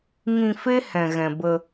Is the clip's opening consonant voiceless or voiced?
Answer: voiced